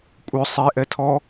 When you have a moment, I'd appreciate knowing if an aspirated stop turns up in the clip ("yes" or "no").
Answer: yes